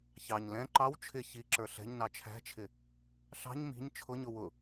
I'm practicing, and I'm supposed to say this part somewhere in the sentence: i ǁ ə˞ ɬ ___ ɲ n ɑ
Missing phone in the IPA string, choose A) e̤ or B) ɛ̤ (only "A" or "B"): B